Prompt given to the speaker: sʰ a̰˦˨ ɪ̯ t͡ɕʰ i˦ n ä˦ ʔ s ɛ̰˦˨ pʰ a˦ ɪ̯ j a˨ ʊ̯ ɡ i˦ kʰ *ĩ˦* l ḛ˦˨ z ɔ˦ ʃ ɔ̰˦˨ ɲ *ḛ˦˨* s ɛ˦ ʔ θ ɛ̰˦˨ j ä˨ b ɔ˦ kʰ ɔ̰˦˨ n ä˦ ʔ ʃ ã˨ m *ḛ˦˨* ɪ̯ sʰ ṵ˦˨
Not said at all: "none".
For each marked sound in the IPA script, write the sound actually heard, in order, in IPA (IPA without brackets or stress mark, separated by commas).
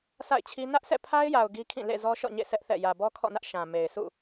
ĩ˦˨, ḛ˦˨, e˨